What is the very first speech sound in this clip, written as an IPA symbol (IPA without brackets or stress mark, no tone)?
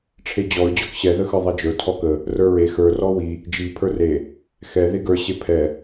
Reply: ʈ͡ʂʰ